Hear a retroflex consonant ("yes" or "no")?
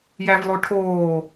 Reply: yes